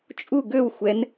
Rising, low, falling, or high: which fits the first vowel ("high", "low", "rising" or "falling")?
falling